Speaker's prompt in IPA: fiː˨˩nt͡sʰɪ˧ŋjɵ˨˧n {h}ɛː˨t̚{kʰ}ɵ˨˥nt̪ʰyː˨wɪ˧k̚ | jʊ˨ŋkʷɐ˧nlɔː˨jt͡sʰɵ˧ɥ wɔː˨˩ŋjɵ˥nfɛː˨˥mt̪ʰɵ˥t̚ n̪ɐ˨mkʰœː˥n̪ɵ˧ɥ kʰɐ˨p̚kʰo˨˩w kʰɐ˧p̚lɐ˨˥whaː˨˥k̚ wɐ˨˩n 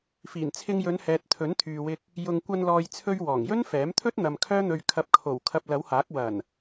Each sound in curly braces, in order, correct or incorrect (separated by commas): correct, incorrect